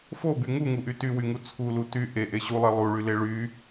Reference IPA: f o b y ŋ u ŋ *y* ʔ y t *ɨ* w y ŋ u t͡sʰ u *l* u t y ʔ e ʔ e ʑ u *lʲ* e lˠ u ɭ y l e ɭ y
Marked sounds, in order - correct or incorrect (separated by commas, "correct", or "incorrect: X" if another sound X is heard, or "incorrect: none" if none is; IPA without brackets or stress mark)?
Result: incorrect: u, incorrect: y, correct, incorrect: lˠ